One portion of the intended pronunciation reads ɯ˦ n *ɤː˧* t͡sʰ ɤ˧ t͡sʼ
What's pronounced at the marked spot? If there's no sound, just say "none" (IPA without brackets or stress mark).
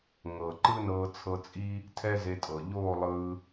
ɤː˧